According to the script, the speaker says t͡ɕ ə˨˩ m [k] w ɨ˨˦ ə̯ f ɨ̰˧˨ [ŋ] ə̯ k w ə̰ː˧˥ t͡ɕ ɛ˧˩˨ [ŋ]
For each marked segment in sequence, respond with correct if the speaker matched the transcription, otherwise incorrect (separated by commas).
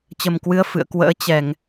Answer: correct, incorrect, correct